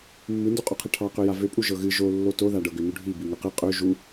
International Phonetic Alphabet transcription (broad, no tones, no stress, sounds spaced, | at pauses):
mː ɨ n d u qʼ o qʰ ɨ ʈʰ ɑ q ø j a v ø pʼ u ʒ ɤ ɣ ɨ ʒ o lː o t o ð a ɖ ɤ ɡ ø n u ɖʱ i b i ŋ ø q ɨ qʼ ø ʒ u